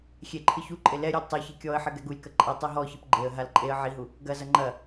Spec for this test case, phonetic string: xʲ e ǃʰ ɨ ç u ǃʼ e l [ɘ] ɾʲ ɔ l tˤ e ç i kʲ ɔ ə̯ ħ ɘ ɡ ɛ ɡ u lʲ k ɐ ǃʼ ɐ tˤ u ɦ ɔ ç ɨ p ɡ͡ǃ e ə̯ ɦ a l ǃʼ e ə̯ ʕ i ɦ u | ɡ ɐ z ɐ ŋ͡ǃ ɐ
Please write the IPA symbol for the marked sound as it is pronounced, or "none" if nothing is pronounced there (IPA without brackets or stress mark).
ɛ